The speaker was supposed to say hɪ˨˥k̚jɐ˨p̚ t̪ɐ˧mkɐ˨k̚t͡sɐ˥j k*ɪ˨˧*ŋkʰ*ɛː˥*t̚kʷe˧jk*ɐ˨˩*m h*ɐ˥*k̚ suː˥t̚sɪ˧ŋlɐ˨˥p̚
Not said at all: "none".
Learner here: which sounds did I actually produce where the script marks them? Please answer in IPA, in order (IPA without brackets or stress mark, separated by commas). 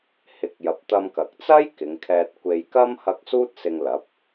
ɪ˨˧, ɛː˧, ɐ˥, ɐ˥